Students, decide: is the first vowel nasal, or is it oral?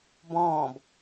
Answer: nasal